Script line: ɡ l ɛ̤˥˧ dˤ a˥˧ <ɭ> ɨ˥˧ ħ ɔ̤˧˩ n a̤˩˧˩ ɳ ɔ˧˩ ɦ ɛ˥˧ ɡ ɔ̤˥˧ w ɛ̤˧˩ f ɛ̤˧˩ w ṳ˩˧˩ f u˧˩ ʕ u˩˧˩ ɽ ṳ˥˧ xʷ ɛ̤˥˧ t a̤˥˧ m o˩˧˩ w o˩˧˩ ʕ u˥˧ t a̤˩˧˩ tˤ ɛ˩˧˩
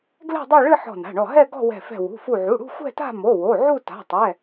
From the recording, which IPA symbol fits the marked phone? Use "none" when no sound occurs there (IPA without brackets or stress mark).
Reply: ɭ